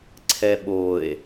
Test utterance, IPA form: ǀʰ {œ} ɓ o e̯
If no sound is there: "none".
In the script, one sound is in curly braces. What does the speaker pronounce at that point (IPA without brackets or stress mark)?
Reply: ɛ